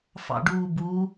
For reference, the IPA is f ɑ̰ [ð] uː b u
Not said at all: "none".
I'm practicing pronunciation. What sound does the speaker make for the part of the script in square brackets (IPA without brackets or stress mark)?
ɖ